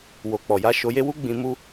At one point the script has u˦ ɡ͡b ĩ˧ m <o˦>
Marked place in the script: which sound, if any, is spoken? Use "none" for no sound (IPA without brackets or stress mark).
u˦